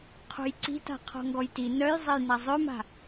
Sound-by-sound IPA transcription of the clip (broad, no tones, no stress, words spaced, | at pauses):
qʰo̤jǀi̤ta̤ qʰɔ̤ŋɡɔjti nœj zˤejnazˤøma̤